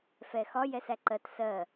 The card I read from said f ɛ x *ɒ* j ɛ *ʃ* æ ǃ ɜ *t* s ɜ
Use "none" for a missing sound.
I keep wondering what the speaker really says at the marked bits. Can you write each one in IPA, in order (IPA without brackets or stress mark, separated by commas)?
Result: ɒ, s, t